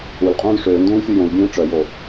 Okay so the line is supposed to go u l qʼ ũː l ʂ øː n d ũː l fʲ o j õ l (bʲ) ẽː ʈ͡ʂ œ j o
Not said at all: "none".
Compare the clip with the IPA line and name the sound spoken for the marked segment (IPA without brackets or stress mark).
bʲ